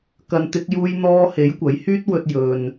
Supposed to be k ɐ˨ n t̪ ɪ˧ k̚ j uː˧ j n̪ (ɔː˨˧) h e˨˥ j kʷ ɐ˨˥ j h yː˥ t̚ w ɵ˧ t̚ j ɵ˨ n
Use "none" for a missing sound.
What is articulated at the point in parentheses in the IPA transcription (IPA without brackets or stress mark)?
ɔː˧